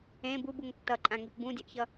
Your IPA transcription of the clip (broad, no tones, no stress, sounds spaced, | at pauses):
ẽ b u b u ŋ tː ʌ ǃʼ ã ŋ i p b ũ dʲ ɯ ʔ ç ʌ